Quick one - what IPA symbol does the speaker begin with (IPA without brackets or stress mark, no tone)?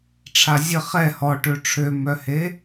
ʈ͡ʂʰ